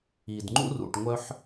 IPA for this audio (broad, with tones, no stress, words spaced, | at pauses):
i˩dŋ͡ǃṵ˥rṵ˩ʈ ŋʷœ˥ħ